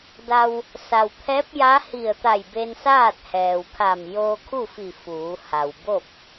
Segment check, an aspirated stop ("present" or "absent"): present